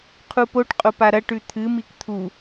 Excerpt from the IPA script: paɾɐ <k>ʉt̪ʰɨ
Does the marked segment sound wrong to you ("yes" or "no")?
yes